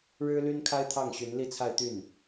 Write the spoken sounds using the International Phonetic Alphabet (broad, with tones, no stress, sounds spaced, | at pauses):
ɻ ɻ̩˥ l y˥ n kʰ a˥ ɪ̯ t̪ʰ ɑ˥˩ ŋ ɕ y˧˥ n l i˥˧ t͡sʰ a˥˧ ɪ̯ t̪ y˥˩ n